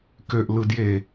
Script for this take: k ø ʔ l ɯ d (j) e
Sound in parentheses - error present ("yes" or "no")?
no